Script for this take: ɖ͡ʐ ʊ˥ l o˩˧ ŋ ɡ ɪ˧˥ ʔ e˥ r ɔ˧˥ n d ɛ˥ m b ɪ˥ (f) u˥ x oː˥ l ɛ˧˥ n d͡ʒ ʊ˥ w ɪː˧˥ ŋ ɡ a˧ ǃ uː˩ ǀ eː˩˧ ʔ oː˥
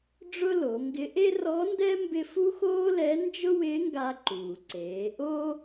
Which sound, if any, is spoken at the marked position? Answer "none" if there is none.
f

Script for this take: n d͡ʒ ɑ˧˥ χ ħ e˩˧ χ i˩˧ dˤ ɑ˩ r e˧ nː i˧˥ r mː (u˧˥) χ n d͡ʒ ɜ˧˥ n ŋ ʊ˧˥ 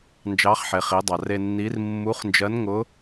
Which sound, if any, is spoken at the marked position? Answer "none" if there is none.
u˧˥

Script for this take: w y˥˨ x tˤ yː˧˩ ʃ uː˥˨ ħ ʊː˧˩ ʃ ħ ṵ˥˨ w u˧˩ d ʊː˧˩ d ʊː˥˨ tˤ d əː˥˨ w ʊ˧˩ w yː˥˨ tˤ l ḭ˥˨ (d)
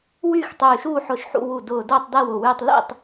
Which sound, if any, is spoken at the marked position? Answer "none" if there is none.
tˤ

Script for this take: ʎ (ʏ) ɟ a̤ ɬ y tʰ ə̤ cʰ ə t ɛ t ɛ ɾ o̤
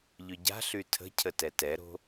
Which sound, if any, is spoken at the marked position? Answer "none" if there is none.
ʏ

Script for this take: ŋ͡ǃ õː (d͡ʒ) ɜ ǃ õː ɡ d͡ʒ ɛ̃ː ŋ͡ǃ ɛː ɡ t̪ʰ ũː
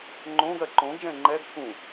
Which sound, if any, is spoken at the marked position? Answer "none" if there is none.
ɡ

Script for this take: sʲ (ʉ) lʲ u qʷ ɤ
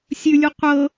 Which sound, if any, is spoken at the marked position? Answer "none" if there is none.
ʉ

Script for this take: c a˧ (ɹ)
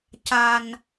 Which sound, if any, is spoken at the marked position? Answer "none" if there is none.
n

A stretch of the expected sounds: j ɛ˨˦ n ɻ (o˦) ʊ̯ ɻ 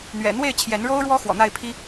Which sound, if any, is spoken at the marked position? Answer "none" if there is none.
o˦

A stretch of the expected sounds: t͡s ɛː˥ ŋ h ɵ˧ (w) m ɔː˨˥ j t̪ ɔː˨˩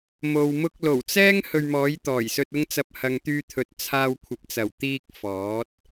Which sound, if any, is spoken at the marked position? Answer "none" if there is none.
ɥ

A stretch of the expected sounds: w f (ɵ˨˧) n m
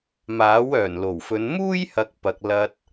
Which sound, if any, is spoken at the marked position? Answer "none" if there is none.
ɵ˨˧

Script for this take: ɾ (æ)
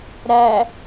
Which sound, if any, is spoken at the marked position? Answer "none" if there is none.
æ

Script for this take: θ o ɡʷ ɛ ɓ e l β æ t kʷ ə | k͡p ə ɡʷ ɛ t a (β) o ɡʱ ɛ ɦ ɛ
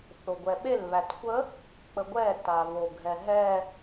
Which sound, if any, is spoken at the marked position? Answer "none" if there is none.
β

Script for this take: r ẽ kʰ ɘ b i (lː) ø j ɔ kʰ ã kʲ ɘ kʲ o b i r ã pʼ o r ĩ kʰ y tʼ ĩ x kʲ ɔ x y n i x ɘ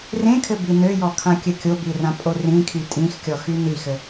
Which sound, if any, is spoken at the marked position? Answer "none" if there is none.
n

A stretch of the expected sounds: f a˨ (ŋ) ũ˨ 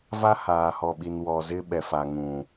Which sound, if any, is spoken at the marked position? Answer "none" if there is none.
ŋ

